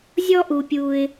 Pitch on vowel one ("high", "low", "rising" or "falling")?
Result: high